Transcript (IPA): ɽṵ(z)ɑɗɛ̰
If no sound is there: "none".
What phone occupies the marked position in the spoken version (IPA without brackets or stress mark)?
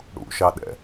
ʃ